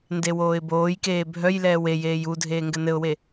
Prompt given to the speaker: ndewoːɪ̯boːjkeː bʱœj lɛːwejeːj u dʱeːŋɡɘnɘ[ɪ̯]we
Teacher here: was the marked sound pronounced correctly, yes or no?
no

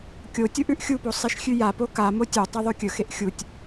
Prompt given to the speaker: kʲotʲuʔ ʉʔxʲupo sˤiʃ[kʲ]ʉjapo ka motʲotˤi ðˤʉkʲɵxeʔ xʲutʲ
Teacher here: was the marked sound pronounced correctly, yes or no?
no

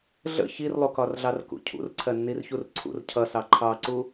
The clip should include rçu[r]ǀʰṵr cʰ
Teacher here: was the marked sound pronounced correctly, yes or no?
yes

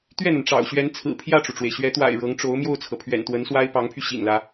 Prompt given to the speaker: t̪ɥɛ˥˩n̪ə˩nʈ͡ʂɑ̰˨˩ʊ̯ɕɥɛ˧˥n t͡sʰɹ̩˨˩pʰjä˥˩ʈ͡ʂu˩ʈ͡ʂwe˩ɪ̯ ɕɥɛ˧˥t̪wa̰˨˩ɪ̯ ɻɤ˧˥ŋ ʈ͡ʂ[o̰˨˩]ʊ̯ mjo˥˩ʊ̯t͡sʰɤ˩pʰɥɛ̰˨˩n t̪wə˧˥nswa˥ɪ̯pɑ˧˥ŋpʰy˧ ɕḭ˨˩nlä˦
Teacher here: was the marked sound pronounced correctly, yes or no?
no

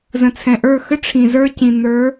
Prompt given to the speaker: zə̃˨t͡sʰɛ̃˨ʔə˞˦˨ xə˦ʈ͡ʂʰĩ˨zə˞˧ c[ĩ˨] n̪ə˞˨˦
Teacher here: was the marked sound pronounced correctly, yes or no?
yes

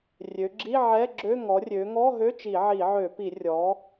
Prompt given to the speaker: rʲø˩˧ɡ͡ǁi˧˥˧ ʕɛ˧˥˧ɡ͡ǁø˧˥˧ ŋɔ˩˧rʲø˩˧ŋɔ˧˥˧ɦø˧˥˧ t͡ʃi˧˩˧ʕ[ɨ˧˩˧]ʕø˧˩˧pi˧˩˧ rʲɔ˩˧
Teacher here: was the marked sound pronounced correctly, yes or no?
no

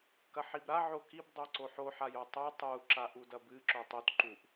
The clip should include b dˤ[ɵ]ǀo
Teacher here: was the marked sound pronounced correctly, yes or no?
yes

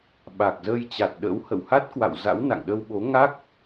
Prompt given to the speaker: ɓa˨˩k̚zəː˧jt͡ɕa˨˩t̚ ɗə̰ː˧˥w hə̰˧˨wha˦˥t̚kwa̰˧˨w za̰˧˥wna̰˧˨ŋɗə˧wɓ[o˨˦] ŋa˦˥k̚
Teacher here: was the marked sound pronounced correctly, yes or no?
yes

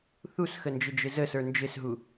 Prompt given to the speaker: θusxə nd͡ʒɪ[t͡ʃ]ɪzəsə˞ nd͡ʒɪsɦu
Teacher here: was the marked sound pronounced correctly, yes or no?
no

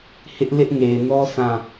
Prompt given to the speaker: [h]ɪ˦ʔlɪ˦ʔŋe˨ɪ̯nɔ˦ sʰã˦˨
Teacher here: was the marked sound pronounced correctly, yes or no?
yes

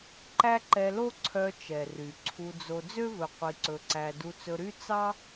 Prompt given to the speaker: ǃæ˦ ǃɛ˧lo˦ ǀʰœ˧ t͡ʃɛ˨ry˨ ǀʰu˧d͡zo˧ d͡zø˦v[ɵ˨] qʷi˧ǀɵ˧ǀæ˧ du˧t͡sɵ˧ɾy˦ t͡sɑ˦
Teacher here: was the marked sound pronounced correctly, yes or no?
yes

